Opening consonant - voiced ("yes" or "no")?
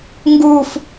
yes